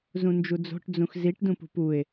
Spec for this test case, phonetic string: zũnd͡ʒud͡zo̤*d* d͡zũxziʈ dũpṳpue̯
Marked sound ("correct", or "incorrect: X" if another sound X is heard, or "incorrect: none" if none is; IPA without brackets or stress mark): incorrect: ʈ